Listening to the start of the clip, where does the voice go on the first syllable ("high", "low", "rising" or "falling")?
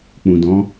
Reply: low